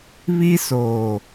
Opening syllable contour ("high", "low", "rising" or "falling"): high